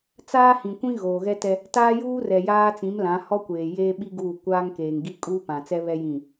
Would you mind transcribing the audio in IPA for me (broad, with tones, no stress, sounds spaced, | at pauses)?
t͡s aː˦ h ĩ˨ kʷ ĩ˦ ɣ oː˨ ɣ ɛ˦ t ɛ˦ | t aː˦ j uː˦ r ɛ˨ j aː˦ t͡s ĩ˨˦ m l ã˨˦ h ɔ˦ kʷ eː˨ j eː˦ ɓ i˦ ɡ uː˦˨ kʷ aː˦ ŋ k eː˨ ŋ ɡ i˦ kʼ uː˦ p ã˨ t͡s ɛ˦ β ɛ˦ j ĩ˦˨